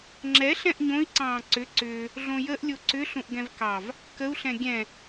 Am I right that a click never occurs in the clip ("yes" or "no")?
no